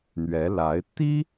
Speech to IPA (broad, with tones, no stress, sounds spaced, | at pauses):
n̪ ɥ ɛ˧˥ l a˧˥ ɪ̯ t̪ i˥